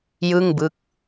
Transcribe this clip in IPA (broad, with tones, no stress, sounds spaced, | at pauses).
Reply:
j ɯ˥˩ ŋ b ɯ˦˥ k̚